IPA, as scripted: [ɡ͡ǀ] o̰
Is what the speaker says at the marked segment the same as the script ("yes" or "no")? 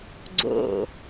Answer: yes